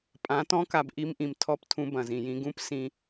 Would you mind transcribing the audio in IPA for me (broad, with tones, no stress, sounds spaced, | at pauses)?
pʼ ã˨˦ t ɔ̃˦ k a˨ b ʔ i˦ m ʔ ĩ˨ m tʰ ɔ˦˨ p tʰ ũ˦ b ɐ̃˨ z ĩ˨ j ĩ˦ ɡ ũ˦ p s ĩ˨